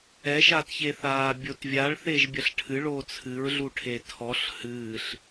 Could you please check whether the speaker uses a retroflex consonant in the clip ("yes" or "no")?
yes